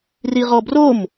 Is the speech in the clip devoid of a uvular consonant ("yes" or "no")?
no